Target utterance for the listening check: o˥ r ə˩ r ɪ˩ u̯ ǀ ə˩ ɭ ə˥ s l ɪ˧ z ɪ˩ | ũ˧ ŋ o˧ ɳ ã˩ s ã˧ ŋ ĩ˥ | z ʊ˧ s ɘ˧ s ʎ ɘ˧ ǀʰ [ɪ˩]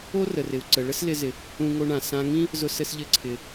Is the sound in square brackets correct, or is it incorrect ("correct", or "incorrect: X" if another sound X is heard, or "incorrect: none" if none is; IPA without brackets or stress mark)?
correct